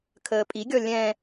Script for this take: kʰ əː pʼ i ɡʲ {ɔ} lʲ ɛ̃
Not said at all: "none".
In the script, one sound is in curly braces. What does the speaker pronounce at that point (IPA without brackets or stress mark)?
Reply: ɔ